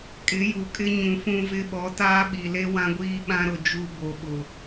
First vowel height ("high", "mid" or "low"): high